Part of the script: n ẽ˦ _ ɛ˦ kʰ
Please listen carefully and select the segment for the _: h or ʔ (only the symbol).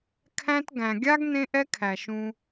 ʔ